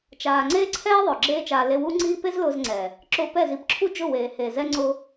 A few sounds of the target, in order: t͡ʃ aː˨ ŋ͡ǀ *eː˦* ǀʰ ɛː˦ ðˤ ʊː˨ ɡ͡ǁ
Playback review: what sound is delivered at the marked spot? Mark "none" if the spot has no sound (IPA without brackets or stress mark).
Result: eː˦